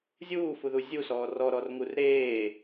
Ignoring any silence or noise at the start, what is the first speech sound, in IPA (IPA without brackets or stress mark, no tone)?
zʲ